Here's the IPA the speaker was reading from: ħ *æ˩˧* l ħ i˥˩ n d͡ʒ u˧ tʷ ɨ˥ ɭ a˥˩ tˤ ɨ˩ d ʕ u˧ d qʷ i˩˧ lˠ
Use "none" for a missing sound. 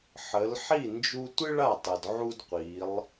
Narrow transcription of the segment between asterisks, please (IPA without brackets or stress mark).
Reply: ə˩˧